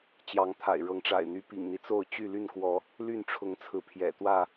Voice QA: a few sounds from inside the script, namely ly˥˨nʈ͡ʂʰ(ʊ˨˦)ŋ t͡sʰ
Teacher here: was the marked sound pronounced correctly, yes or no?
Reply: yes